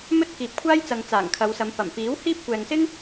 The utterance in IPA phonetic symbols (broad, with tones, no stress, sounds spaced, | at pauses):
m ɵ˥ t̚ k iː˨ p̚ kʷʰ aː˥ j t͡s ɐ˨ ŋ t͡s aː˨˩ ŋ kʰ ɐ˨˧ w s ɐ˨˧ m p ɐ˨˩ m f iː˨˥ w h iː˥ p̚ kʷ ɛː˨ ŋ s ɪ˥ ŋ